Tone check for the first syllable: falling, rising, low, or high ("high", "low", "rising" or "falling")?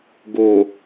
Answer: low